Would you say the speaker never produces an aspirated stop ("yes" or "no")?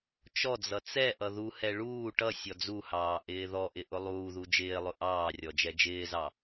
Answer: yes